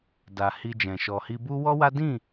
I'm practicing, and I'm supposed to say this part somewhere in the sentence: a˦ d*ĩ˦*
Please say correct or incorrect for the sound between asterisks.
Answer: incorrect